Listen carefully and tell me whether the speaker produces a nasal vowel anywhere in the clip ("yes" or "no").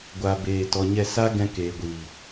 yes